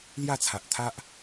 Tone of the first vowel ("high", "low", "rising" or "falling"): falling